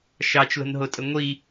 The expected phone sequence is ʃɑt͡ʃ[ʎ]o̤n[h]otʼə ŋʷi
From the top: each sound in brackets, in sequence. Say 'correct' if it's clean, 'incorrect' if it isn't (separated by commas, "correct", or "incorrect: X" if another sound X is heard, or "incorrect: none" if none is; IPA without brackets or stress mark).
incorrect: l, incorrect: ɦ